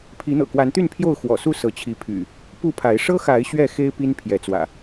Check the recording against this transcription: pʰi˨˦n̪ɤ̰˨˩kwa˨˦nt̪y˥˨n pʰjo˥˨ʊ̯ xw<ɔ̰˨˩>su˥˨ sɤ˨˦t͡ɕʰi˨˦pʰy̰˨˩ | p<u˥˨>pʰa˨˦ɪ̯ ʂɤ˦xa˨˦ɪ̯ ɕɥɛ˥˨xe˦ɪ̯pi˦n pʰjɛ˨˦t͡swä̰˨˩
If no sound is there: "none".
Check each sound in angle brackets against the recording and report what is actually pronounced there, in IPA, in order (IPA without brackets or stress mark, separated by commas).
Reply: ɔ̰˨˩, u˥˨